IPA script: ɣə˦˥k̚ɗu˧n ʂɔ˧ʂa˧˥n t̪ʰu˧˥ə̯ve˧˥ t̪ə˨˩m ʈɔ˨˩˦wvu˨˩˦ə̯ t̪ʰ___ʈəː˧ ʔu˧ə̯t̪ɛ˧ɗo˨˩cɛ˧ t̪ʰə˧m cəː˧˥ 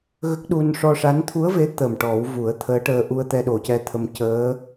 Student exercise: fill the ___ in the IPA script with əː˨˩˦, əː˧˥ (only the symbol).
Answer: əː˧˥